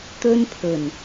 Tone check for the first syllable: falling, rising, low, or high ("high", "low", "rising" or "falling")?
high